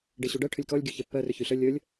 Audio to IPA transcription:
ɖeɕuɖɜ ʈʰʏlʲkɔlʲ ɡʲuçɛpːɜ rʏçyɬə lʲəːlʲ

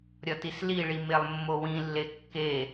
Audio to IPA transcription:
ɾʲɒtisliɭi melˠmːowĩlːe kːe

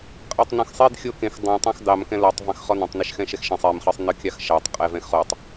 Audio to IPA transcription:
qʼɑtˤnɔ̃xsˤed xʲokẽx dˤõtˤɑ̃x dɑmkɛ̃ lɔtˤ vɑ̃xχɔnɑ̃tˤ neʃxɛ̃ʃɛxʃɛ̃sˤ emχə˞sˤ nɯkʲɑxʃɑtˤ qʼɛvɛ̃xχotˤ

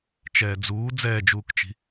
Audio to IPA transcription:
t͡ʃɛːd͡zuː d͡zɛːd͡ʒuːkt͡ʃi̤

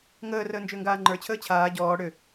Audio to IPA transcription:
ŋəːrəː nd͡ʒʏːŋɡaːŋ͡ǃə˞t͡ɕʰəː t͡ɕʰaː ɟɔː ɽʏ

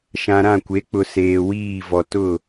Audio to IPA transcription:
ʃã˨ɾã˦˨kʷe˨˦k͡pʊ˨ seː˨wiː˦˨vɔ˨ tʊ˦˨

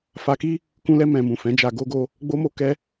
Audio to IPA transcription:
fa˧ki˦ | kũ˧lɛ˧ mɛ̃˨ mũ˨ fɛ̃˨˦d͡ʒa˧ ɡo˧ɡo˧ | ɡ͡bo˧mo˧ kɛ˧

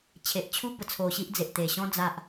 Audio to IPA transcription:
t͡ɕʰe˨ʔt͡ɕʰu˦bə˧ t͡sʰo˧ɕi˦ʔd͡ze˨ʔt̪e˨˩ ɕɔ̃˧ d͡za˨ʔ

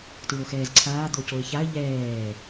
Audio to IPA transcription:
tɹoxɛːzǀʰaː d̪ocoɪ̯çaə̯ ʎɛː

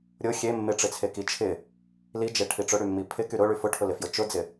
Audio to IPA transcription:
ɾʲʊ xʲe mːɪʈ͡ʂɪt͡sʰe kit͡ʃʰɪ | lid͡ʒe ʈʰiʈ͡ʂʊɽy mːipʰɪ kyɾʊɭy fʊʈʰʊlɪfjʊ t͡ʃʊd͡zɪ

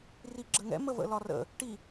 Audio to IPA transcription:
riɡ͡ǁəŋɛ̰ məvə̰lɒrə̰ | ʈi

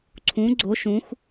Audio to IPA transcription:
ǀʰũ ɡ͡ǀo ʃũx

